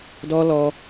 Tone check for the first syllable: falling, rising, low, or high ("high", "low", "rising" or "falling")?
high